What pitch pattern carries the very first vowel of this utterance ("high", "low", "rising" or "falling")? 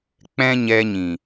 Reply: high